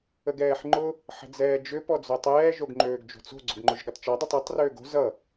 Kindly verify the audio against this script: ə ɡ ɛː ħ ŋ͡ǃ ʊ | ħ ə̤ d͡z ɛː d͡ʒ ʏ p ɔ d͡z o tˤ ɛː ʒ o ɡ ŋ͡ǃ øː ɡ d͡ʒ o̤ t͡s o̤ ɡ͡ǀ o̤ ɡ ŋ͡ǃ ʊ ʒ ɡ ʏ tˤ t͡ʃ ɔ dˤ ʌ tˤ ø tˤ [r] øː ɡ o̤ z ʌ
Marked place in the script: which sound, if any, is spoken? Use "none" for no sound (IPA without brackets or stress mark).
r